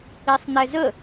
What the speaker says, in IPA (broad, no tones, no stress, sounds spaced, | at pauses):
i sˤ n̪ ɛ z ə